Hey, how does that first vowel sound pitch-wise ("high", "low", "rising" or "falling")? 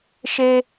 high